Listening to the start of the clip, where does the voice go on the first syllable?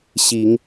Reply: rising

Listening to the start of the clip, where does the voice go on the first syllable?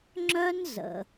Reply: high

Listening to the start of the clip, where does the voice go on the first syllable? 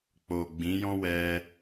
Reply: low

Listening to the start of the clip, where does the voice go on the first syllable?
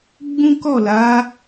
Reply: high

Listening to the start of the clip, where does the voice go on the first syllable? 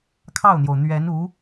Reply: falling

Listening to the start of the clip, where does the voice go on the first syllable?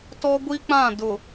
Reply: high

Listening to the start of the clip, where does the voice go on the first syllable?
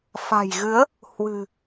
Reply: low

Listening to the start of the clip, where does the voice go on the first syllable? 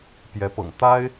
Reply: rising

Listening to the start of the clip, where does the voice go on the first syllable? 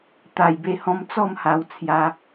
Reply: low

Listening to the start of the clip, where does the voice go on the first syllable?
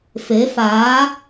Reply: rising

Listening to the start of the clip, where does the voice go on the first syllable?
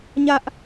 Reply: high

